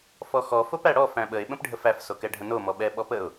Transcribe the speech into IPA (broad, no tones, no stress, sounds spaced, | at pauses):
f ɔ x ɔ f o p æ ɽ ɔ f æ̃ ɓ ə ɪ̯ ɓ ə̃ p ɖʱ ə f æ f s o k ɛ ɖʱ ə̃ n o m ɔ ɓ ɛ ɓ ɔ p ə ʊ̯